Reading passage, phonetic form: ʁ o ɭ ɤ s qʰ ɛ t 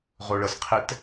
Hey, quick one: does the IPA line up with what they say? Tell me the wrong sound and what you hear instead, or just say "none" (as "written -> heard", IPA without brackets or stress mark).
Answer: none